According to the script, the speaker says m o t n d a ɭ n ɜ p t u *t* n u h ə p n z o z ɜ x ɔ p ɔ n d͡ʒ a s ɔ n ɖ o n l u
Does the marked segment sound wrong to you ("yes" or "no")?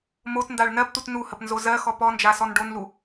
no